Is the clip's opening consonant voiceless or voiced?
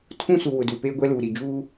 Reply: voiceless